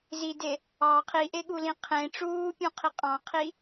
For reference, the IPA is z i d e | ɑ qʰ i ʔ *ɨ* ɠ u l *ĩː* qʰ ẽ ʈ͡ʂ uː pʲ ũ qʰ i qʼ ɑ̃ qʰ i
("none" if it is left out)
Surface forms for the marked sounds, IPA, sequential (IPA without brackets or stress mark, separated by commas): e, ĩ